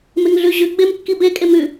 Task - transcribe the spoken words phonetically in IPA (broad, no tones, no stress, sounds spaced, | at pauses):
m e ŋ ɮ ʉ ʑ ʉ ɡ͡b e m kː i b e kʼ e m ʉ